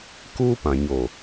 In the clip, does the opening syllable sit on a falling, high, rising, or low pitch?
high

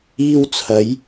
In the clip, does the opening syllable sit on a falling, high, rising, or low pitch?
high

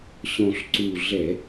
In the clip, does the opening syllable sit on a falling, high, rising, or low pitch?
low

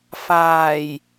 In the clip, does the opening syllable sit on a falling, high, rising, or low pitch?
low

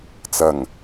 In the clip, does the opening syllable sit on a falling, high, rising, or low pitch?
low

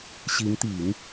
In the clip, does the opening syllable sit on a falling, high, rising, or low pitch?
rising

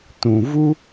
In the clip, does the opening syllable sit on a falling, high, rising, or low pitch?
low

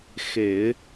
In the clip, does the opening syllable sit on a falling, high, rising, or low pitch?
low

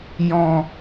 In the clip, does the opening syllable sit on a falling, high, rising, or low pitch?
low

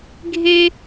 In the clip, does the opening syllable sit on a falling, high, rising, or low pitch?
high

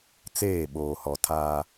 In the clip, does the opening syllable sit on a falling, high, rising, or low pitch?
falling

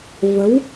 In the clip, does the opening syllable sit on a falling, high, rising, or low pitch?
rising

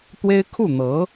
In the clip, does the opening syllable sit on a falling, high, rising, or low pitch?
high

